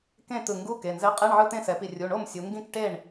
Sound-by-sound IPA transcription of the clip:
k ẽ˥˩ t̪ ɯ˧˩ ŋ ɡ u˧˥˧ k e˩˧˩ n z ɛ˧˥˧ qʼ e˧˥˧ ɳ ʕ ɯ˧˥˧ t̪ ẽ˥˩ s ɛ˩˧ p i˧˩ rʲ u˩˧˩ ɳ o˥˩ m sʲ u˩˧ ŋ ɡ ĩ˥˩ k ʈ e˥˩ ɳ

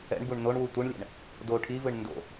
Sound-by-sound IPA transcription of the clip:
ɛ̰ ɳ b u ɳ n o ɳ w u tʷ ɯ ɳ lʲ ɛ̰ ɳ | d o ʈʰ i v ɯ ɳ n d o̰

